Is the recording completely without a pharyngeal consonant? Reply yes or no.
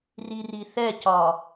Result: yes